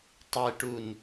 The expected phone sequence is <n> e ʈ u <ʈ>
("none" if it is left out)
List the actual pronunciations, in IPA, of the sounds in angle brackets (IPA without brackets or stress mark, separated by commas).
tˤ, n